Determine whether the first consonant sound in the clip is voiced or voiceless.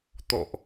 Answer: voiceless